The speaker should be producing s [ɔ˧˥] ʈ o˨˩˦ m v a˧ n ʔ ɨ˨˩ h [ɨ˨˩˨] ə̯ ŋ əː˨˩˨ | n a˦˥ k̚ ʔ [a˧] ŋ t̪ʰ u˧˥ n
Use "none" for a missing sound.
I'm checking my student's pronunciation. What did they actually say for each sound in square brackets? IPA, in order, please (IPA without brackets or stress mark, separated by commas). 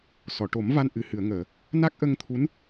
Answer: ɔ˨˩˨, ɨ˨˩˨, ə˧